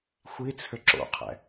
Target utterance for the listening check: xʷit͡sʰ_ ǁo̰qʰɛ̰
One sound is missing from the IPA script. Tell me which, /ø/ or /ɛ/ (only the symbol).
ø